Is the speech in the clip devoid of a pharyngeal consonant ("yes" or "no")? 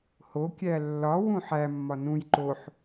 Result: no